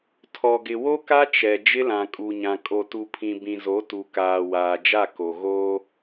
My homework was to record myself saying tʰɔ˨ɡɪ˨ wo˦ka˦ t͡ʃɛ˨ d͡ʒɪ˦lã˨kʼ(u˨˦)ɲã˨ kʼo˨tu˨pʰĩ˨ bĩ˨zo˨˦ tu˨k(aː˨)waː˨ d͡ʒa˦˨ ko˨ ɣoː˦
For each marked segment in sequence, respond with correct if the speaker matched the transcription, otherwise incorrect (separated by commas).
incorrect, correct